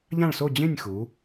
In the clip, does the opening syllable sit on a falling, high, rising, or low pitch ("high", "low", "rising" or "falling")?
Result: falling